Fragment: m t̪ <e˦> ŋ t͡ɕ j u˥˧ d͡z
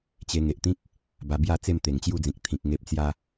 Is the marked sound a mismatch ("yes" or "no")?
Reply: yes